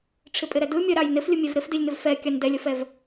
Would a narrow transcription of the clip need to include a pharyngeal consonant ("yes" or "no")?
no